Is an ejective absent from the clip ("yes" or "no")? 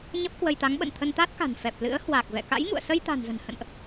yes